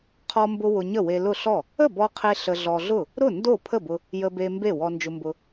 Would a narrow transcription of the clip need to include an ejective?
no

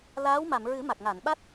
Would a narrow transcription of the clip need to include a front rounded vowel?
no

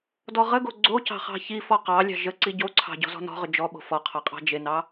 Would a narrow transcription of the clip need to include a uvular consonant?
yes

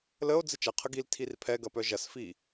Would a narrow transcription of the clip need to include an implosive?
no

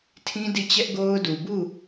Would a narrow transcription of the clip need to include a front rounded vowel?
no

